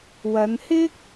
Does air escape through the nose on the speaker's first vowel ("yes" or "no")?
no